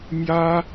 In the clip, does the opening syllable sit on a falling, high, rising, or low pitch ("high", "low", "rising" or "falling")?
high